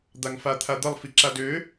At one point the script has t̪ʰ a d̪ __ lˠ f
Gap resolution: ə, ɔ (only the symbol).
ə